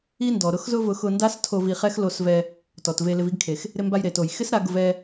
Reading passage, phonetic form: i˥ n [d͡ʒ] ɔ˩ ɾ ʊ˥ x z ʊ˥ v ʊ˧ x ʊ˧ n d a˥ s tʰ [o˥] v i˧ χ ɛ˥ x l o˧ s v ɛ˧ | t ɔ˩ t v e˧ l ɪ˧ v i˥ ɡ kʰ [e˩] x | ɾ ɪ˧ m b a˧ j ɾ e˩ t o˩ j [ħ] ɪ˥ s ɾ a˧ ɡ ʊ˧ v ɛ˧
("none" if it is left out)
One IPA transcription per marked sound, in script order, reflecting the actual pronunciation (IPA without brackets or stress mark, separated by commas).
d, o˧, e˩, x